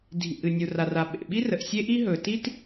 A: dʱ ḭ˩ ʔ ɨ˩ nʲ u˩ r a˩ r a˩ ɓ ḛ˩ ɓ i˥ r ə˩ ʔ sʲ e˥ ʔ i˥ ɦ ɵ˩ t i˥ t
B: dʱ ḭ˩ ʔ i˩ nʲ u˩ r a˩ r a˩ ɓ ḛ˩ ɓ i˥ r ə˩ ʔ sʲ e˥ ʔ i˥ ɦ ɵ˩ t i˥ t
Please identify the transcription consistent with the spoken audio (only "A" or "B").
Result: A